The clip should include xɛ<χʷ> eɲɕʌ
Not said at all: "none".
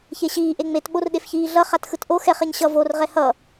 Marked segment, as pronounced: χ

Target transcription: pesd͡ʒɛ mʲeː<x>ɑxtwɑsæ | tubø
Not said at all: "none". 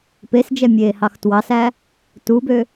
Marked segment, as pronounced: h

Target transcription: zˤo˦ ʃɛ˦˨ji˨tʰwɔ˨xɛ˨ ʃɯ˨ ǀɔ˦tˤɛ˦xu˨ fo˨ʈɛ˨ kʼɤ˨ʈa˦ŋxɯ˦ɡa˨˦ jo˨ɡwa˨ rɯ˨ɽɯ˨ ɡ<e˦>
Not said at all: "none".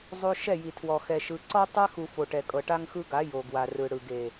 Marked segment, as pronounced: e˨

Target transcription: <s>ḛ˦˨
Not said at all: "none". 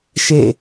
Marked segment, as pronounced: ʃ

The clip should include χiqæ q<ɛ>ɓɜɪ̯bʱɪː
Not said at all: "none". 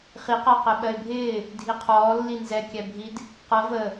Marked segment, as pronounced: ɛ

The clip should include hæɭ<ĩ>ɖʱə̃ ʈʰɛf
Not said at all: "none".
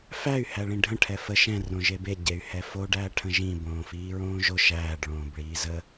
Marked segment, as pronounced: ĩ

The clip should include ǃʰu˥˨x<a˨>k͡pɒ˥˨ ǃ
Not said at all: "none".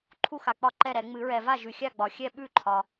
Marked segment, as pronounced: a˨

